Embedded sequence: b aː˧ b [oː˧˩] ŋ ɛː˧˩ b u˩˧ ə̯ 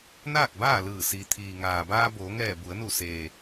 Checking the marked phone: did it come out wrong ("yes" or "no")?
yes